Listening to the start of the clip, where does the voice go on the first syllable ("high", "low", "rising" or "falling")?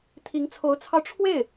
rising